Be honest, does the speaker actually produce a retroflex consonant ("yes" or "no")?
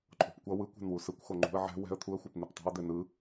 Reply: no